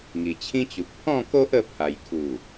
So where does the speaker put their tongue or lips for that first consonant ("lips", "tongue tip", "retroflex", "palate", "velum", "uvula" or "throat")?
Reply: velum